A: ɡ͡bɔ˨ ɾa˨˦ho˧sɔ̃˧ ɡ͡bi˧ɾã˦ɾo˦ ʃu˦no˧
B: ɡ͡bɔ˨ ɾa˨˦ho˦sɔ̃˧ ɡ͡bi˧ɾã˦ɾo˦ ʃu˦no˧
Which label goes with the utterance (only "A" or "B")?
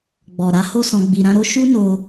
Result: B